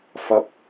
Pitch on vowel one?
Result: low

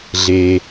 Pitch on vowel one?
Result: low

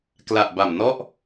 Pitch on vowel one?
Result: low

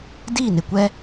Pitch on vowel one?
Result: falling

